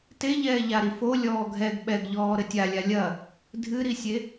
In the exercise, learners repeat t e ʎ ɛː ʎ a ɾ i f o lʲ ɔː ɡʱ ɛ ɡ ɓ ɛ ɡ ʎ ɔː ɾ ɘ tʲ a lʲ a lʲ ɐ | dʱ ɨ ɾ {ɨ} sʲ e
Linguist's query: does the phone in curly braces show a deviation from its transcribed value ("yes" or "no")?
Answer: yes